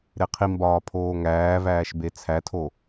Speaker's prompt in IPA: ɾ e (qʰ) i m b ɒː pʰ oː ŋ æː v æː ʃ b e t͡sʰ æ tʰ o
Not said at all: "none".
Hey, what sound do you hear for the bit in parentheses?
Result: qʰ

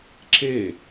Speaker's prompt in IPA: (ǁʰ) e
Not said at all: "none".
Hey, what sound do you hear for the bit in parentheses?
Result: ǁʰ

